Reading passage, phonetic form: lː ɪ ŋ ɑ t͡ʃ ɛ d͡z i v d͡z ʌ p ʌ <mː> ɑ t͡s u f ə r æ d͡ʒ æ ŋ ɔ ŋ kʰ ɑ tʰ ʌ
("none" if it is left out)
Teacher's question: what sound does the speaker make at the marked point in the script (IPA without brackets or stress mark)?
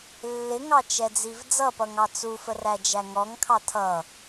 ŋ